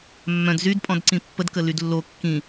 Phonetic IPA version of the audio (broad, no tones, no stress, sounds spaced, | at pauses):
mː œ̃ d z y d pʼ ɔ̃ d ǀ ĩ pː ə d k ə l y d lː o kː ĩ